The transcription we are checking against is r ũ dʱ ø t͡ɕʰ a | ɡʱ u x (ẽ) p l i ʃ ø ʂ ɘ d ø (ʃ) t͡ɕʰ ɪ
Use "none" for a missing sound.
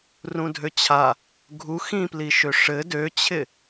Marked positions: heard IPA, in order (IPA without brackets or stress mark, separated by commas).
ĩ, none